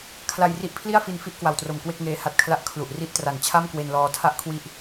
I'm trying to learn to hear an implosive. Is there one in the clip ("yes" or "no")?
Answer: no